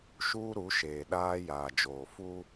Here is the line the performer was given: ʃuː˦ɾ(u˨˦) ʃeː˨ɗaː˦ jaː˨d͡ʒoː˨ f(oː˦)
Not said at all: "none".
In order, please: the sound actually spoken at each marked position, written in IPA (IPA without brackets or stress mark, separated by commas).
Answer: u˨˦, uː˦